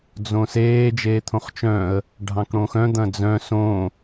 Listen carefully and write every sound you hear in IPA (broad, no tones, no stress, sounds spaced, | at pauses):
d͡z õ s eː d͡ʒ eː t̪ʰ õ χ t͡ʃ œ̃ ə̯ | ɖʱ ɑ̃ k ɽ õ x œ̃ d̪ ɐ̃ d͡z œ̃ s õ